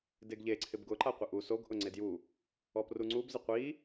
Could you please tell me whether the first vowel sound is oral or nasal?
oral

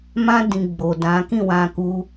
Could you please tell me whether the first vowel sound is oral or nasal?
nasal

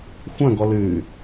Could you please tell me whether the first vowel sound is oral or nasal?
nasal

